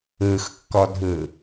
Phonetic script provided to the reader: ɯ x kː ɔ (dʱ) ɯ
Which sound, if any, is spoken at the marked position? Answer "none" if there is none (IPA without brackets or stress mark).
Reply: dʱ